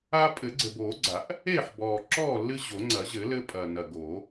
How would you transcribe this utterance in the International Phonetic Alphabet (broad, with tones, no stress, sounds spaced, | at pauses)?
a˦ pʼ ɘ˨˩˦ ɡ͡ǀ ɘ˨˩ b oː˨˩˦ ɡ͡ǀ a˨˩˦ ʔ | e˥˨ ħ b ɔː˨˩ ǁ ɔː˥˨ lː ɨ˦ ʑ o˨˩˦ ŋ͡ǀ ɐ˨˩˦ ʑ ɘ˨˩˦ l ɘ˦ pʼ ɐ˨˩ n ɐ˨˩ ɡ o˨˩˦